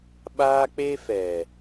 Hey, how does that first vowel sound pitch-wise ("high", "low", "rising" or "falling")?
high